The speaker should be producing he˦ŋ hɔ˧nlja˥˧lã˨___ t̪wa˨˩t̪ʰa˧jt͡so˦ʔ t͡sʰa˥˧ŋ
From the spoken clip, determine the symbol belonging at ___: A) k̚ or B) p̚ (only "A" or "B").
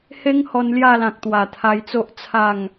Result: A